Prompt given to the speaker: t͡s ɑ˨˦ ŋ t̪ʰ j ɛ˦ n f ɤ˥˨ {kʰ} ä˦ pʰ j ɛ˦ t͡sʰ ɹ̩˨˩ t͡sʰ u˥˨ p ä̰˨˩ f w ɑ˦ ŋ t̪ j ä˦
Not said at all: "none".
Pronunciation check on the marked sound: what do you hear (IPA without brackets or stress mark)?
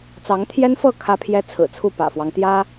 kʰ